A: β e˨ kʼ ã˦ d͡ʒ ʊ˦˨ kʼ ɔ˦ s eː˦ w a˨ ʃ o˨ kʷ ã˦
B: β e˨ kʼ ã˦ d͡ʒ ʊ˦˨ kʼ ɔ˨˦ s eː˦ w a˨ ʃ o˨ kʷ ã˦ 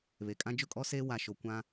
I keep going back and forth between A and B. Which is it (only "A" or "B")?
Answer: A